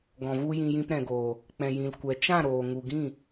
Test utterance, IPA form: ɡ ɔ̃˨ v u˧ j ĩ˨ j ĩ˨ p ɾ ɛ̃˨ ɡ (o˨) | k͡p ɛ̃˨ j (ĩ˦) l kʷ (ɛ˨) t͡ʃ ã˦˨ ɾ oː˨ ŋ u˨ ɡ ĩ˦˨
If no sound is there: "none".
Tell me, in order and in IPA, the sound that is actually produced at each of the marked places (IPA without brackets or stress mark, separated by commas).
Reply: oː˨, ĩ˨, ɛ˨